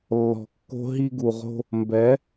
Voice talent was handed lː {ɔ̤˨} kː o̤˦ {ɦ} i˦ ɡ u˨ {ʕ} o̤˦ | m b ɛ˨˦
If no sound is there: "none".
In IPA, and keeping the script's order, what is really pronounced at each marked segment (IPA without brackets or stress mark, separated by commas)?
ɔ̤˨, ɦ, ʁ